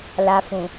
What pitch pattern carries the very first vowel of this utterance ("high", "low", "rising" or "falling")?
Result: low